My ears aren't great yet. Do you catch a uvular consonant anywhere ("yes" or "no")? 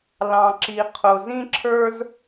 yes